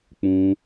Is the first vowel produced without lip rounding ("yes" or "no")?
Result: no